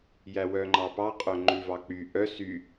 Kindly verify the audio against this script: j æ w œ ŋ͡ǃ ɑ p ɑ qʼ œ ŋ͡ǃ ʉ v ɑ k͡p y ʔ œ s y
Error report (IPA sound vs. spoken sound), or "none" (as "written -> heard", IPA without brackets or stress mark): none